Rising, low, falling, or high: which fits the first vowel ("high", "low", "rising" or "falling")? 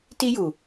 high